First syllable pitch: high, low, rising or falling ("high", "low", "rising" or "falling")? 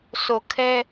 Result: low